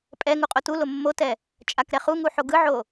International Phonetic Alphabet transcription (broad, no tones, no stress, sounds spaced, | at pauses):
pʼ ɛ ŋ u qʼ o t u l o mː o t ɛ | t͡ʃʼ a k ɾ ɛ χ u ŋ u ħ o ɡ ɯ ʕ o